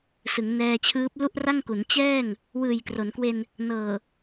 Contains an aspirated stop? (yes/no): yes